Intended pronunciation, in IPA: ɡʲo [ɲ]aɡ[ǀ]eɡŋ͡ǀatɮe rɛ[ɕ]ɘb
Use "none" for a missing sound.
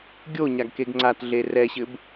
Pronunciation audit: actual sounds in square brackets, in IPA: ɲ, k, ɕ

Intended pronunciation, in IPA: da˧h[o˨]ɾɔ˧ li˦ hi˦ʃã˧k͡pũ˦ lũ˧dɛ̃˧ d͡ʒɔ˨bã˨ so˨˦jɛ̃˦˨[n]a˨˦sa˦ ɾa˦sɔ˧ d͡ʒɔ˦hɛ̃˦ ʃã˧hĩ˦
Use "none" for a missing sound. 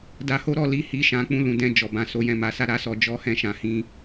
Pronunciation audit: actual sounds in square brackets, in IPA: o˦, m

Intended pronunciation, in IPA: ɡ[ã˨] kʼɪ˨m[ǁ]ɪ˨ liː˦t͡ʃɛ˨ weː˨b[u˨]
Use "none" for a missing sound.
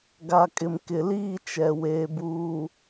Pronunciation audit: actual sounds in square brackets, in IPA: a˨, k, uː˨

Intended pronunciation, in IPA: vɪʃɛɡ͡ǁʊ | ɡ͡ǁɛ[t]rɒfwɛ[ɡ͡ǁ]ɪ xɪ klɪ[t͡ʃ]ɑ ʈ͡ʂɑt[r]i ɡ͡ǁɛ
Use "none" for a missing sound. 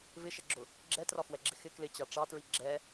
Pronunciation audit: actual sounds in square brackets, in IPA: t, ɡ͡ǁ, t͡ɕ, ɹ

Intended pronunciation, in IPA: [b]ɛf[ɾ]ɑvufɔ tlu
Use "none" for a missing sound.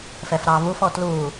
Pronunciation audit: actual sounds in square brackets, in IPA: f, ɾ

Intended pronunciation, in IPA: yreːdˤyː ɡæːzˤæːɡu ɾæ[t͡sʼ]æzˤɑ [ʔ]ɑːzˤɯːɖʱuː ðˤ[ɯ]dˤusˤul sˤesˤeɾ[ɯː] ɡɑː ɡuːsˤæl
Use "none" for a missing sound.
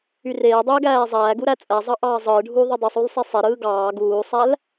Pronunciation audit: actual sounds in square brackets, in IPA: t͡sʼ, ʔ, ɯ, ɯː

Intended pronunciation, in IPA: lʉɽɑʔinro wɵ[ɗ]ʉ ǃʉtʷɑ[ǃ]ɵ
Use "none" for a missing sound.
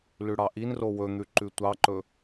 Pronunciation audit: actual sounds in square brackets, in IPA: n̪, ǃ

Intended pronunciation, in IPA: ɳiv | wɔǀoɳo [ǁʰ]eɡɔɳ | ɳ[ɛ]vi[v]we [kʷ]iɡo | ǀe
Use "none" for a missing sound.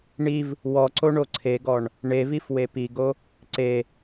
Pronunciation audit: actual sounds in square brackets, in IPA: ǀʰ, e, f, p

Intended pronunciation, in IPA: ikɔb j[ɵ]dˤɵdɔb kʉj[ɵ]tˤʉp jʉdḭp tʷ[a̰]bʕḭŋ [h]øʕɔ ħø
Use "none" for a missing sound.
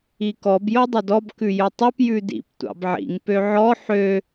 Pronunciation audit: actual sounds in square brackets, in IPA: o, ɵ, ɑ̰, p

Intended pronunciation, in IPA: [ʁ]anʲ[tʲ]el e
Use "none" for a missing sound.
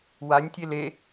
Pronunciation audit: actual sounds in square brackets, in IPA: w, tʲ

